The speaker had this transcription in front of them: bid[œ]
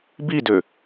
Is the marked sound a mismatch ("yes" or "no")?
yes